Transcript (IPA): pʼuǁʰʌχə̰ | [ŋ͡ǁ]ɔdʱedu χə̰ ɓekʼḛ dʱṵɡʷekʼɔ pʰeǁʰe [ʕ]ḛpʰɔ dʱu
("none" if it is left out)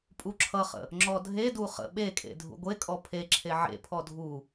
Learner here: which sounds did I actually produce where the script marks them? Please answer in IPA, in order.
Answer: ŋ͡ǁ, ʕ

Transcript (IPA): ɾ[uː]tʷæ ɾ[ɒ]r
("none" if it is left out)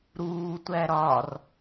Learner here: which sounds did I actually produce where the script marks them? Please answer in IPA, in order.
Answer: uː, ɒ

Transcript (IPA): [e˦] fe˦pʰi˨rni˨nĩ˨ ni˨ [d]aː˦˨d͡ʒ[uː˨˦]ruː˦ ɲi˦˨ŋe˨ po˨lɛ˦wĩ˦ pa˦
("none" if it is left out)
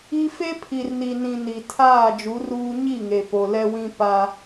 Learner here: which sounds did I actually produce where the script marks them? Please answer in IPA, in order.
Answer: i˦, tʰ, u˨˦

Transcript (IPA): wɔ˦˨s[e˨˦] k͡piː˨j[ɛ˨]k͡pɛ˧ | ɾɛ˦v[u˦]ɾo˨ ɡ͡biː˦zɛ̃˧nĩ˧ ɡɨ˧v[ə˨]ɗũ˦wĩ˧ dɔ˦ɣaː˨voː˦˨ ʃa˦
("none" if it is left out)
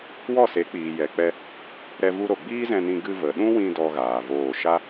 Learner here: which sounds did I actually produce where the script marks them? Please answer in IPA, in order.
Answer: e˨˦, ɛ˨, u˦, ə˨

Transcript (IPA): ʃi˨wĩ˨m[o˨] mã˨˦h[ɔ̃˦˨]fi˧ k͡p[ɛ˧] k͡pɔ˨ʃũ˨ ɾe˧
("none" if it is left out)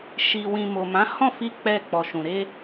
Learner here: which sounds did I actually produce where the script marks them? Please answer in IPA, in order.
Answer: o˨, ɔ̃˦˨, ɛ˧

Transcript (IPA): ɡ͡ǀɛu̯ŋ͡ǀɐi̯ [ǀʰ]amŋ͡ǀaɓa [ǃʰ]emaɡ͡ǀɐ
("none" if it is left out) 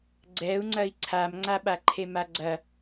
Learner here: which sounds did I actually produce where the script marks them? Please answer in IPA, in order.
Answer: ǀʰ, ǃʰ

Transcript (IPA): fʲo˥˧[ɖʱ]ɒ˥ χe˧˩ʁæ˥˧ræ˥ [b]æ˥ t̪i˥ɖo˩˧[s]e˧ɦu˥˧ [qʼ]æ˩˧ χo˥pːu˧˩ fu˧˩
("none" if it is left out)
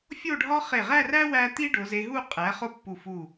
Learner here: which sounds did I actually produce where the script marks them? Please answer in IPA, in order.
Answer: ɖʱ, w, z, qʼ

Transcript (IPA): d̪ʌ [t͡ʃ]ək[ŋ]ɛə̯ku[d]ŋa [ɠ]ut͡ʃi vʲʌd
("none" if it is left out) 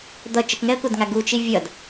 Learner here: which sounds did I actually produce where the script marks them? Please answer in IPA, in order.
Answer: t͡ʃ, ŋ, d, ɡ

